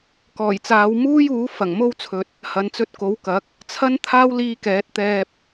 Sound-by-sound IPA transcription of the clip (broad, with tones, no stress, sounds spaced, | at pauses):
k ɔː˨˩ j t͡s aː˨˧ w m uː˥ j uː˨˥ f ɐ˨˩ ŋ m o˥ w t͡sʰ ɵ˧ t̚ | h ɐ˨ n t͡s ɵ˧ t̚ k o˨˥ w k ɐ˨˥ k̚ | t͡sʰ ɐ˥ n t̪ʰ aː˥ w l iː˧ k ɛː˨˥ t̚ t̪ ɛː˧ p̚